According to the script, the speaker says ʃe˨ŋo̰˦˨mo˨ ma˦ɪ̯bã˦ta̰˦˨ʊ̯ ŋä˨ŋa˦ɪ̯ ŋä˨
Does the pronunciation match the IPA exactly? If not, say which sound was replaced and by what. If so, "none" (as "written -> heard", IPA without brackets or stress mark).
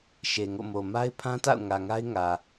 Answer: b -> pʰ